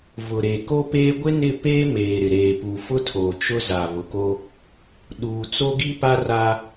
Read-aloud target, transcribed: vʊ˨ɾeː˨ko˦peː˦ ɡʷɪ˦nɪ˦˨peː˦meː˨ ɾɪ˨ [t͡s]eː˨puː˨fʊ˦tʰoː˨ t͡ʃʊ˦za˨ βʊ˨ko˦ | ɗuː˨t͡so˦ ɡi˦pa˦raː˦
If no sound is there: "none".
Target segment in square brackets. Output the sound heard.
ɾ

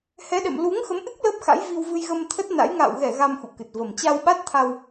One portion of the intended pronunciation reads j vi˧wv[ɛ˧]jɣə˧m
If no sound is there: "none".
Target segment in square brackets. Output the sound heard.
ɨ˧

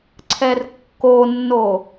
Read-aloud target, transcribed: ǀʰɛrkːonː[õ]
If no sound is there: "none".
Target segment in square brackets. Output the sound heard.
o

